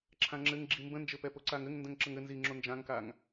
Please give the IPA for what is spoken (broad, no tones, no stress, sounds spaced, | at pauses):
ǁʰ ã ŋ͡ǁ ɘ ŋ ɡ͡ǁ i m b ə̃ n d͡ʒ ɘ p ɛ p o ǀ a ŋ ɘ ŋ n d ə̃ ŋ ǁ ə ŋ ɘ n z i ŋ͡ǁ o n d͡ʒ ã ŋ k a ŋ